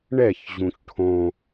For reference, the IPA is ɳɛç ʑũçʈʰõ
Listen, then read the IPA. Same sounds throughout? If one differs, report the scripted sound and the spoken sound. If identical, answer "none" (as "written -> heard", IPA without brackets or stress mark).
none